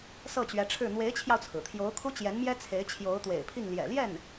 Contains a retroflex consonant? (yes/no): yes